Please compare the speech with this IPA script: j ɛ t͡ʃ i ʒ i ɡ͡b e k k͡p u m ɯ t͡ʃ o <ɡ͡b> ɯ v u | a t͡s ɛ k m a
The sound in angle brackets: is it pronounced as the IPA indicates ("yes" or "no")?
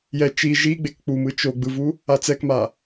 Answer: yes